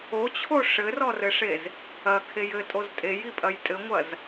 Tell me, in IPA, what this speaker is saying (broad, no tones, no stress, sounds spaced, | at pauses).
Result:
o t͡ɕʰ o ʂ ɘ r ɔ r ɘ ʂ e z | ɐ kʰ e j ɘ tʼ o z tʼ e j i pʼ ɐ j tʼ ɘ ŋʷ ɐ z